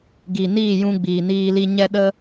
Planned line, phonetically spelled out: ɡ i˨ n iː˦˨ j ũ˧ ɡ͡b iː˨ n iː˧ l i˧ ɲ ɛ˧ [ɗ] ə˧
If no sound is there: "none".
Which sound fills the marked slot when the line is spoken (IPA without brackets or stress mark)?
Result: ɗ